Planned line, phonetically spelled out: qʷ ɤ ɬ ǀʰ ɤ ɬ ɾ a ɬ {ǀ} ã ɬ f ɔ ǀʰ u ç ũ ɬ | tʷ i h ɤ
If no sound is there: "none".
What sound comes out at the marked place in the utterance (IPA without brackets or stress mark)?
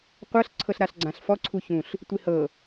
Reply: ɡ͡ǀ